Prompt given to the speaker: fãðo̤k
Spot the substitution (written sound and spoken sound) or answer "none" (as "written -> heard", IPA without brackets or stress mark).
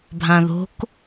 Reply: f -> bʱ